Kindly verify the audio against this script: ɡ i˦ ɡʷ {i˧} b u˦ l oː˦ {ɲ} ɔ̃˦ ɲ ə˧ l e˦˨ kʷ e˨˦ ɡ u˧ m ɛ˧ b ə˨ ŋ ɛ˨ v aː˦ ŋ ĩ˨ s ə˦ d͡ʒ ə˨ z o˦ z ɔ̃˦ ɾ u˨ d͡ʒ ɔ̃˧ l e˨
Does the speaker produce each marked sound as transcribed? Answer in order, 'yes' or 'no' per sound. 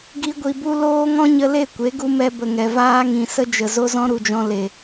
yes, no

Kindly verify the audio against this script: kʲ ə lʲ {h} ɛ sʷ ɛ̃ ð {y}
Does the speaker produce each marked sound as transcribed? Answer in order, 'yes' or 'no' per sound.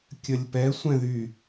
no, yes

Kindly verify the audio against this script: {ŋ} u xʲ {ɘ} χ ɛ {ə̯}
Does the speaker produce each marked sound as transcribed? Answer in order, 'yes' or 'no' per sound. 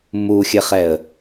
no, yes, yes

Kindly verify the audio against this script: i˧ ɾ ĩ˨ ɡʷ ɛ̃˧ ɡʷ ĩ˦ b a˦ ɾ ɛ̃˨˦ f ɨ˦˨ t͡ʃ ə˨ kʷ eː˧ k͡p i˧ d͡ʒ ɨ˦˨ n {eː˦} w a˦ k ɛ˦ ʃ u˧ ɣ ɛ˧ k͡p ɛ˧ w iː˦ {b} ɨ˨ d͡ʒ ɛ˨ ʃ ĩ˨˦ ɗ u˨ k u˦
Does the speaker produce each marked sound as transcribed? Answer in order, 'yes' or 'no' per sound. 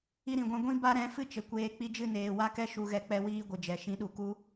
no, no

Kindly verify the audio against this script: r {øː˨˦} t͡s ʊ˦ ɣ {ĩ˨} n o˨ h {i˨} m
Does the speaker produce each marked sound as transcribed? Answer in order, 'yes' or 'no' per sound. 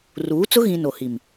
no, yes, yes

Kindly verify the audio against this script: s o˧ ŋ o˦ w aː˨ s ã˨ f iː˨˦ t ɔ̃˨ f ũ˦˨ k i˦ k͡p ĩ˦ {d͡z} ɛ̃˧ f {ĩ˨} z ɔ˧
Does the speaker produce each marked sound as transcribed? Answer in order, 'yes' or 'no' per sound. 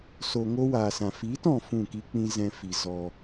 no, no

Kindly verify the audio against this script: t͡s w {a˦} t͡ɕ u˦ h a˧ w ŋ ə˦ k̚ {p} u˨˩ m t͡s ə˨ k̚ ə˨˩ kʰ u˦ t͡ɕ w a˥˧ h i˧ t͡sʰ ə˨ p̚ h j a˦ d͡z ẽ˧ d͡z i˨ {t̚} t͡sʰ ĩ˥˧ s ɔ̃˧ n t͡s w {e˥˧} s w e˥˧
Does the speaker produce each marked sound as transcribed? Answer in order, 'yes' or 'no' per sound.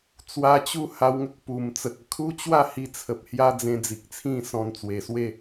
no, yes, no, no

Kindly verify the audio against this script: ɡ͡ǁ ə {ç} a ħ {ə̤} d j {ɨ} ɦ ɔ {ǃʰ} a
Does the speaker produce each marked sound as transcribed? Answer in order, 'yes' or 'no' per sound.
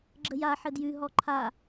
no, no, no, yes

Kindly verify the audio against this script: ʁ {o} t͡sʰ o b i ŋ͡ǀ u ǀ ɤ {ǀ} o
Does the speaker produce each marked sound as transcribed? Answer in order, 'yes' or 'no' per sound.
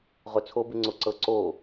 yes, yes

